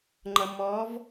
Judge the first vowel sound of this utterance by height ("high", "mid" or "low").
mid